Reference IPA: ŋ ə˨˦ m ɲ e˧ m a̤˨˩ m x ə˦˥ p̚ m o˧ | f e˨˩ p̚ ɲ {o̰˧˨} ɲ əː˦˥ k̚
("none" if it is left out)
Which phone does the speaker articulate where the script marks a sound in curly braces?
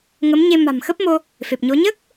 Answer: o˨˦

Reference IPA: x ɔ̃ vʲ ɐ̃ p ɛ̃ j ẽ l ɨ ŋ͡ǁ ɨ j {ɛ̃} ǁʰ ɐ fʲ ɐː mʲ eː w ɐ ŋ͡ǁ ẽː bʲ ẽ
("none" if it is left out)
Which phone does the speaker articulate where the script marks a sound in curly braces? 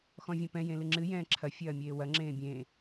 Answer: ɛ̃ː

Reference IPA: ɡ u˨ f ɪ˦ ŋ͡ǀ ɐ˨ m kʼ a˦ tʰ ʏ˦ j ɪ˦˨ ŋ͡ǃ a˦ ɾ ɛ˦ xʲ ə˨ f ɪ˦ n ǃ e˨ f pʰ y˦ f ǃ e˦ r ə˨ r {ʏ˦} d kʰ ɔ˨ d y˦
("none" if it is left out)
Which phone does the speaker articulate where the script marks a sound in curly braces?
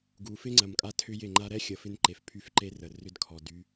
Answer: ʏ˦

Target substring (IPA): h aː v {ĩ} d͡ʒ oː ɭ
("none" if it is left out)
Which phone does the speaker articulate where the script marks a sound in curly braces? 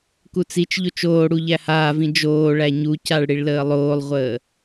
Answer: ĩ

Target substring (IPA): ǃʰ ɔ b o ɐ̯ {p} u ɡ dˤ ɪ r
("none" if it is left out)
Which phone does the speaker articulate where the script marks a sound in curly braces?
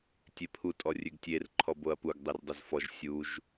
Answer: p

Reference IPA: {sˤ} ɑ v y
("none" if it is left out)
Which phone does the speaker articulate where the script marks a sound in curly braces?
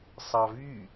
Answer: sˤ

